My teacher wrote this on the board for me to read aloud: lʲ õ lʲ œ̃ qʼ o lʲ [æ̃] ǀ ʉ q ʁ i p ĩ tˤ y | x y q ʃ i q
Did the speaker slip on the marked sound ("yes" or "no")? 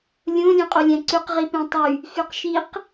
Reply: no